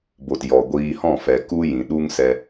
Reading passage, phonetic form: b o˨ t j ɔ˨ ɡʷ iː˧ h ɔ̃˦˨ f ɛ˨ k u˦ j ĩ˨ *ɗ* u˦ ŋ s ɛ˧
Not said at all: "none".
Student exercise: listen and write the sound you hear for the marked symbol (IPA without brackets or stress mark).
ɗ